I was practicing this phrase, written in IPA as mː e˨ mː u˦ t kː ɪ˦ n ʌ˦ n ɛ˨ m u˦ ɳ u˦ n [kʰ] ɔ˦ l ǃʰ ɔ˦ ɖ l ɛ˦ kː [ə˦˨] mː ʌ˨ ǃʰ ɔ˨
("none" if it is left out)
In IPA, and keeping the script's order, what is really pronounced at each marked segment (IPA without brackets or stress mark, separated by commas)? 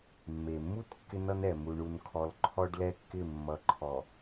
kʰ, ɪ˦˨